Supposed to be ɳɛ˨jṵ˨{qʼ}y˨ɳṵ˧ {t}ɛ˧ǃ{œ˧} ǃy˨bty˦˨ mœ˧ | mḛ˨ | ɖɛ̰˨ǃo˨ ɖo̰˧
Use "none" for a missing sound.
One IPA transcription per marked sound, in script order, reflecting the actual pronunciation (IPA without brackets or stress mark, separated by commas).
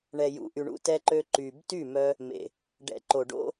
ʔ, t, ø˧